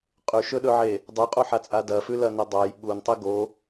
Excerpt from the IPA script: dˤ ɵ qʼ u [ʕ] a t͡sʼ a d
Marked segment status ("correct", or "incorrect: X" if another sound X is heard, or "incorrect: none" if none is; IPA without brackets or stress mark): incorrect: ħ